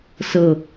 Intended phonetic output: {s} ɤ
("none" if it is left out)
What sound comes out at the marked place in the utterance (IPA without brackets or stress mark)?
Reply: s